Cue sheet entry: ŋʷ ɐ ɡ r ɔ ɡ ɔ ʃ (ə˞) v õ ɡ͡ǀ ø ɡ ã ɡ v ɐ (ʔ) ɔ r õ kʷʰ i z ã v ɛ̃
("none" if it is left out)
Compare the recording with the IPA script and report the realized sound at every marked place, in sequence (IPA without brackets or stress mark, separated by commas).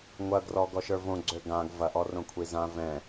ə˞, ʔ